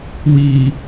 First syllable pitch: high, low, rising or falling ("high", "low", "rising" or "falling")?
low